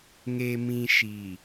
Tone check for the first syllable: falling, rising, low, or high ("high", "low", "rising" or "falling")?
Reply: low